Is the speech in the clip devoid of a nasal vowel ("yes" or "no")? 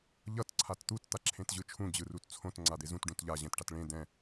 no